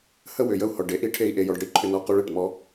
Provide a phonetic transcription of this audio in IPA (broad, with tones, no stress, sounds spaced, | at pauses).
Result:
h ə˦ w ʏ˨ j ə˦ u̯ h ɔ˨ ɖ e˦ ʔ i˦ ʈʰ e˦ i̯ ʔ e˦ j ɔ˦ ɖ ɽ i˦ ǃʰ ʏ˦ n ɔ˦ q u˦ ɭ e˨ ʈ m ɔ˦